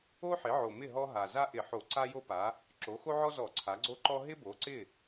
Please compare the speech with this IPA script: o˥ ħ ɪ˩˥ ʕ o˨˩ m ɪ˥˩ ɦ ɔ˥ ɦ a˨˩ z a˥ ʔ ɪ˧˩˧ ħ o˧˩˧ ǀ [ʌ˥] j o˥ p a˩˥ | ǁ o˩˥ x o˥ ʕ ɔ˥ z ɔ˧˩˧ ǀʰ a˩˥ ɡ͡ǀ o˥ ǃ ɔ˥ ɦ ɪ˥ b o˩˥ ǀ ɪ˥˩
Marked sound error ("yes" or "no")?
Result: yes